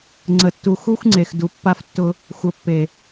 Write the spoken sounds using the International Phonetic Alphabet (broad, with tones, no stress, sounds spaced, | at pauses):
ŋ͡ǀ ə˨ tː u˨ x u˦ xʷ ŋ͡ǀ e˨ x d u˨ pː a˦ f tː ʊ˦ | xʷ ə˨ pː e˨